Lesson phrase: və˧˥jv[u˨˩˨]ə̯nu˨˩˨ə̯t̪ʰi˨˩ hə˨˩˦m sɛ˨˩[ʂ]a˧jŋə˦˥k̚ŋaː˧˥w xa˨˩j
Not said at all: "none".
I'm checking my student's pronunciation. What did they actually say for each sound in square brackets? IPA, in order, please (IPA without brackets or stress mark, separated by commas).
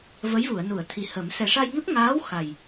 u˨˩˨, ʂ